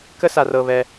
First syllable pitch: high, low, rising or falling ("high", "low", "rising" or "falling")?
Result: high